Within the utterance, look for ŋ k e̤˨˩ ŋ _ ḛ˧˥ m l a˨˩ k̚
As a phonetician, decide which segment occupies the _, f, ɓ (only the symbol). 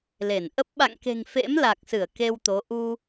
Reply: f